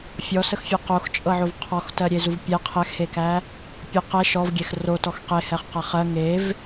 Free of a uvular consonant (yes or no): no